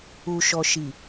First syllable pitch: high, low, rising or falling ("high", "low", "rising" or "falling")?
low